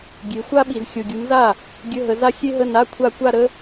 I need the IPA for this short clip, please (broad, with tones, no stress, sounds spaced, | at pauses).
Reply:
ɡʲ e˨˦ xʷ a˥ ɓ i˨ z xʲ o˨ ɡʲ u˨˦ m z a˥˩ | ɡʲ ə˧˥˧ ɦ ə˨˦ z a˥ xʲ e˥ ɦ ə˧˥˧ n a˧˥˧ kʷʰ a˥˧ kʷ a˥˧ ɾ ə˥